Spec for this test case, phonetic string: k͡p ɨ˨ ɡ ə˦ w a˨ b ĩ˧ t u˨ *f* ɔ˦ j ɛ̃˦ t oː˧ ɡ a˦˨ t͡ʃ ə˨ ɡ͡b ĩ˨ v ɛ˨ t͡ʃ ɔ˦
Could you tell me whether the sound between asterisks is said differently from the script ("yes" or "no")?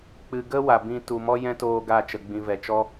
yes